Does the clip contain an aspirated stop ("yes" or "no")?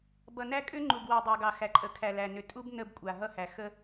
yes